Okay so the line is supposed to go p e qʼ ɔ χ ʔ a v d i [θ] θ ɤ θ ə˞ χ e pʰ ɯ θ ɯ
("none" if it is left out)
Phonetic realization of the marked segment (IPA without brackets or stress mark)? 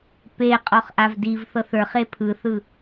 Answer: v